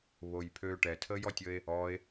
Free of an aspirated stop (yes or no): no